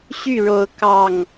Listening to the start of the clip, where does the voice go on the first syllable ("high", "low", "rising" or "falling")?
falling